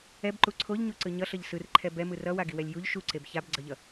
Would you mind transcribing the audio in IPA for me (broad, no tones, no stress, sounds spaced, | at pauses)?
ɛ b ǃ u ǀʰ o ʎ ɲ u ǀ ɯ ɲ ʌ ɬ ʌ ʎ s ɯ r ǃʰ ɛ b ɛ m ɯ r ʌ w a ɡ i w ɛ lʲ j u ʎ ʃ u ǀ e b ç a b ɡ͡ǀ ʌ ʎ ʌ